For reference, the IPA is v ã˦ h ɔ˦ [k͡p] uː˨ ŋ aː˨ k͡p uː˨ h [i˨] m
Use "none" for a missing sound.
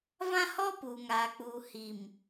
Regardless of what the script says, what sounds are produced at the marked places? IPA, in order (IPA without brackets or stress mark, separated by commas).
p, i˨